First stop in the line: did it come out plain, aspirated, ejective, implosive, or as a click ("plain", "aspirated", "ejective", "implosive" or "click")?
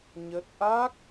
plain